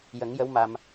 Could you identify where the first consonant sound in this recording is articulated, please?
palatal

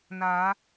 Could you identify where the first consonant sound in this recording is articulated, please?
alveolar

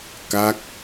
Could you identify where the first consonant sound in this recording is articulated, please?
velar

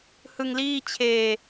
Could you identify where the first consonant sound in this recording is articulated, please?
glottal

